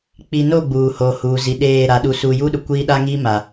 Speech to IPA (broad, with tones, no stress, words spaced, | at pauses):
k͡pi˨no˦˨ ɡ͡buː˨ho˨huː˨ zi˨ɗeː˦˨ ɾa˨ɗu˨su˨ ju˦ɗʊ˨ kʷiː˦ɗa˦ ŋiː˦ ma˨